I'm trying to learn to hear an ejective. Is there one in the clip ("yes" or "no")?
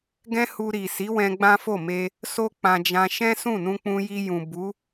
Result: no